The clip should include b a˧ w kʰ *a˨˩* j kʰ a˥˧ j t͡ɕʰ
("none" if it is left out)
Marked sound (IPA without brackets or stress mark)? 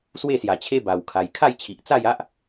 a˧